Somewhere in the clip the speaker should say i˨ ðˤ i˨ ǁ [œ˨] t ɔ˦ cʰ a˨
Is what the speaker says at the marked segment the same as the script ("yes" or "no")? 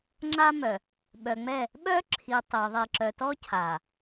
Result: yes